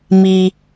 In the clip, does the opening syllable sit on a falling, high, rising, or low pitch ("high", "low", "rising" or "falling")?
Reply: low